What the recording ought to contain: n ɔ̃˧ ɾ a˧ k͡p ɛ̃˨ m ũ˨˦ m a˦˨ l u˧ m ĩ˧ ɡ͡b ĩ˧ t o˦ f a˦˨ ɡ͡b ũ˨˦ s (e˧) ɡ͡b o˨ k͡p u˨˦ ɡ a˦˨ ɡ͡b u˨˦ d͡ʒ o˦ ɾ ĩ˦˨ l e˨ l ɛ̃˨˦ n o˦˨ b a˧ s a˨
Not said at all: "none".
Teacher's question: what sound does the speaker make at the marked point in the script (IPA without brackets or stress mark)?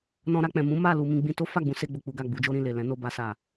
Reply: e˧